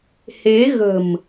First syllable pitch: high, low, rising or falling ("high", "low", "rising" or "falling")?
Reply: rising